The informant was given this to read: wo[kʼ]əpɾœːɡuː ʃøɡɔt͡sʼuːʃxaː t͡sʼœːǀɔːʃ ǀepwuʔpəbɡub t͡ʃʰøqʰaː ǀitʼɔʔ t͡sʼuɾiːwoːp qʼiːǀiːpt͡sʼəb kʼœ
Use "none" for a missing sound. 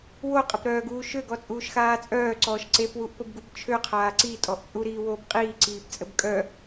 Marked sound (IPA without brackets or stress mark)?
qʼ